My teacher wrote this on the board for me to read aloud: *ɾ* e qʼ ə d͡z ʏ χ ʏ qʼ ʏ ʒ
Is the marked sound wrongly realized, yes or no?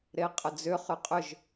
no